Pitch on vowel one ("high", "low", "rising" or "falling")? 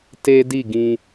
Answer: high